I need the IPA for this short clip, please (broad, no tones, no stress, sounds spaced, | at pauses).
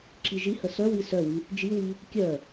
ǁ i ʒ i h ə s œ w i s œ w y | d͡ʒ i w i | kʲ œ